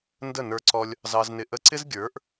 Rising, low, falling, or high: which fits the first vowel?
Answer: falling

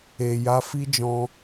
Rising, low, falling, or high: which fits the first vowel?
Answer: low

